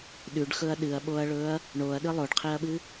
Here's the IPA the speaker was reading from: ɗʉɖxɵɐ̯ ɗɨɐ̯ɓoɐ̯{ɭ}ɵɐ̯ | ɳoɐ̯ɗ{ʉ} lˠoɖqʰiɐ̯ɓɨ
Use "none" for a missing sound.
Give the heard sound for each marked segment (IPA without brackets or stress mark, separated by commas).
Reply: ɭ, ɨ